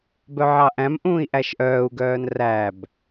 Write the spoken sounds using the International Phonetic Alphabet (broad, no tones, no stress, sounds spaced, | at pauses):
b œ ʕ ɑ ʔ æ̃ m ʔ ũː i̯ ʔ æ ʃ ʔ œː u̯ ɡ œː n r æ b